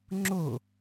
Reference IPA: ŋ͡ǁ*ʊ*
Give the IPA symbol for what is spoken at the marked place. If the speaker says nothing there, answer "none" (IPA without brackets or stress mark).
ʊ